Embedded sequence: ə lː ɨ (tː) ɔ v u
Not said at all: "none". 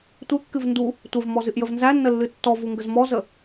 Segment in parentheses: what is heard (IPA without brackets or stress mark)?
tː